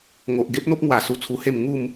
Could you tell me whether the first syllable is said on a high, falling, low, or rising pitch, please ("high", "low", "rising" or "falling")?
low